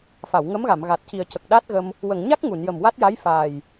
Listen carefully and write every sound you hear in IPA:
fa˨˩˨wŋə˧˥mɣa˨˩˨mɣa˨˩t̚ ci˨˩ə̯cə˨˩k̚ɗa˦˥t̚ɣə˧m | wə˨˩˨ŋɲa˦˥k̚ ŋu˨˩˨njə˨˩m wa˦˥t̚ja˧˥j faː˨˩j

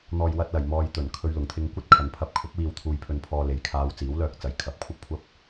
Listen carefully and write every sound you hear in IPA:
n̪ɔː˨jwɐ˧t̚lɐ˨˩j mɔː˨jt̪ɵ˨˩n kʰɵ˧ɥlʊ˨˩ŋt̪ʰɪ˧ŋ kʷɐ˥t̚ kʰɐ˨˧npʰɐ˧p̚ kʰʊ˨˥k̚wiː˨wt̪ʰuː˨jpʰɵ˨n pʰɔː˧le˨˧jkʰaː˧w t͡siː˨˥wlœː˧k̚t͡sɐ˨j kʰɐ˨˥p̚kʷʰɐ˥p̚kʷʰɐ˥p̚

